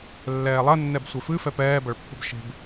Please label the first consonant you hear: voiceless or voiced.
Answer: voiced